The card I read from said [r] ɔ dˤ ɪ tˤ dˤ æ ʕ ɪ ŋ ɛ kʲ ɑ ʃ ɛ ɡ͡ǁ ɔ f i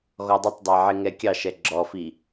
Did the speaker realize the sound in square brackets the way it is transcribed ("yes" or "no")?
no